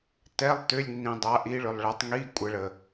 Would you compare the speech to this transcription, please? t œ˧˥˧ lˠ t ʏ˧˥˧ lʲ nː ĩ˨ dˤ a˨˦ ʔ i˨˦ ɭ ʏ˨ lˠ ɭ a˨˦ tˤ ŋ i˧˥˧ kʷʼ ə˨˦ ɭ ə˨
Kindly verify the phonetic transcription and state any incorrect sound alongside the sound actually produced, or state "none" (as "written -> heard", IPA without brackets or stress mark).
œ˧˥˧ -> ɛ˧˥˧